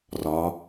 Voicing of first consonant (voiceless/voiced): voiced